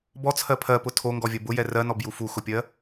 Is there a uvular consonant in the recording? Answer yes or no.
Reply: no